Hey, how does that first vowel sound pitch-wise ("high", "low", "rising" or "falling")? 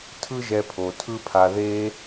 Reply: high